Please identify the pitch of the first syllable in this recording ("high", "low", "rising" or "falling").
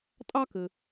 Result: high